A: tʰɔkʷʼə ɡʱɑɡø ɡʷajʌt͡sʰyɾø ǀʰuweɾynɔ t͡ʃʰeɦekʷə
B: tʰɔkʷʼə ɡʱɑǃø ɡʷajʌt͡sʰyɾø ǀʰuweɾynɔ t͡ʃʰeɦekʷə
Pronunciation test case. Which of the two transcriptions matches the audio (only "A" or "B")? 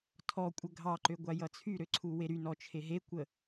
B